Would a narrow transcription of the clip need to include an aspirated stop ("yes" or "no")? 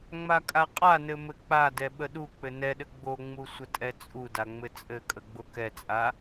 no